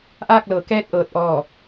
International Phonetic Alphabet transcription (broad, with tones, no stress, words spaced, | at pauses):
ʔaː˥˨k̚lɤː˩˧ kɛː˧t̚ ʔɤː˧˥t̚ʔɔː˥˨